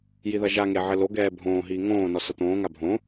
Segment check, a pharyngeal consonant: present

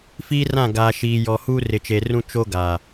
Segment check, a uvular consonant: absent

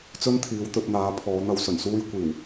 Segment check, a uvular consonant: absent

